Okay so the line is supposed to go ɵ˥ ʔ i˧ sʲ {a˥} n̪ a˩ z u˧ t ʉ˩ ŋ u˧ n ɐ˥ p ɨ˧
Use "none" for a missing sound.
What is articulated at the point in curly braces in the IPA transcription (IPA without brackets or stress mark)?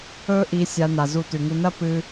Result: a˧